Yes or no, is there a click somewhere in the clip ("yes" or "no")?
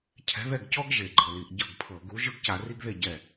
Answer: yes